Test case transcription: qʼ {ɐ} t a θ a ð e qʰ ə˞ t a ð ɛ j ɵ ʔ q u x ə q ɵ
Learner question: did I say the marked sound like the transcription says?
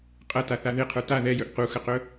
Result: yes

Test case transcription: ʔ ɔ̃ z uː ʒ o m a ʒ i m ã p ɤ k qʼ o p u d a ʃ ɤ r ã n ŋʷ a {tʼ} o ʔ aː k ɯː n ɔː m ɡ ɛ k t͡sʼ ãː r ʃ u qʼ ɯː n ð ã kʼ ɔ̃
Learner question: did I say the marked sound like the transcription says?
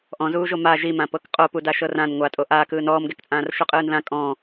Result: yes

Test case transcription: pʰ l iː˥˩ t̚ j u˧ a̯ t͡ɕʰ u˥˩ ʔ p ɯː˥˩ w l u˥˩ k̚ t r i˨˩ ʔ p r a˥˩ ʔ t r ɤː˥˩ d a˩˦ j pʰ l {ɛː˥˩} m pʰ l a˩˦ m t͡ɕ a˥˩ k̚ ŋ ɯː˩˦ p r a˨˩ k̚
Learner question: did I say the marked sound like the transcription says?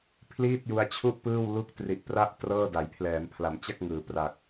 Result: no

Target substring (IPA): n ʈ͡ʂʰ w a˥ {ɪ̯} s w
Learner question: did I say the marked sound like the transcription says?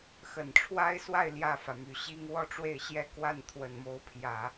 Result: yes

